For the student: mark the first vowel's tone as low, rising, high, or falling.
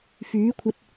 rising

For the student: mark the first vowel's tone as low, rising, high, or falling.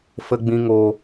low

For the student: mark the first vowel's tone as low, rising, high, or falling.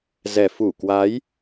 low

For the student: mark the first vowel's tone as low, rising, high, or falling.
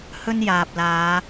high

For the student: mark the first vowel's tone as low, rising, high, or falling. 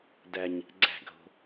high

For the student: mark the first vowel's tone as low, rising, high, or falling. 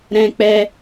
high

